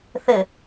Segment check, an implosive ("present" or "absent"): absent